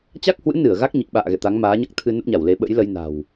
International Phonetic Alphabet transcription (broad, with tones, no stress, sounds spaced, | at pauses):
t͡ɕ a˦˥ k̚ h w ɨ̰˧˥ n ɨ˧˩ ə̯ ɣ a˦˥ k̚ ɲ i˨˩ k̚ ɓ a̰ː˧˨ ɣ ɛ̰˧˨ t̪ a˨˦ ŋ m aː˨˦ ɲ a˦˥ k̚ t̪ʰ ɨ˧ n ə˦˥ p̚ ɲ a˧˩ w l e˨˦ ɓ ə̰˧˥ j l ə˧ j n a̤˨˩ w